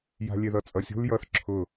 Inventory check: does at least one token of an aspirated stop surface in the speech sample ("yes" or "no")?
yes